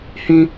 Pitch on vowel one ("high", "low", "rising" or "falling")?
high